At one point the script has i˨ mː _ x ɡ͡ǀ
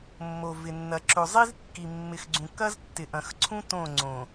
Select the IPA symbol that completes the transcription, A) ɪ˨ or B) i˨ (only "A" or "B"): A